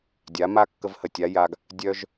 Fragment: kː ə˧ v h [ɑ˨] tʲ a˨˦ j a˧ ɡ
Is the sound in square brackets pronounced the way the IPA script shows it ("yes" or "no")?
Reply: no